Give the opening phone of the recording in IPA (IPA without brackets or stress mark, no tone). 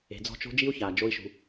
e̤